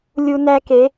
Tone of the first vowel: high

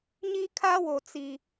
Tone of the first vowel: high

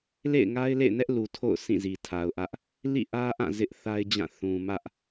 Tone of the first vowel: falling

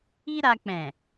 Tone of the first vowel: high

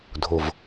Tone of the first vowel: low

